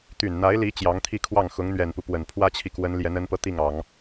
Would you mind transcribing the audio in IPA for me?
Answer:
t̪ y˨˩ n n̪ a˧˥ ɪ̯ l i˧˥ t͡ɕ j ɑ˧˥ ŋ t̪ʰ i˥˧ kʰ w ɑ˥˩ ŋ x ʊ˧˥ ŋ n̪ ɥ ɛ˨˩ n p u˦ p w ə˨˩ n pʰ w ä˥ t͡ɕʰ i˨ k w ə˧˥ n l j ɛ˧˥ n ə˧˥ n p ɤ˧ t̪ i˥˩ ŋ ɑ˨˩˦ ŋ

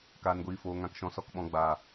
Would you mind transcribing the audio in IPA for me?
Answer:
k aː˨ n ɡʷ iː˨ f oː˨ ŋ ã˨ k ʃ ɔ̃˨ s ɔ˨ k ɓ ɔ̃˨ ɡ͡b aː˨

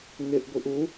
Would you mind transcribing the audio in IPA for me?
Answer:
ŋ ɪ ʔ ɡʷ i ʔ u

